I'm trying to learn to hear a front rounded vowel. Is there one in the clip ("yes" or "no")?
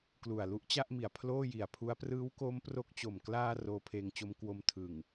no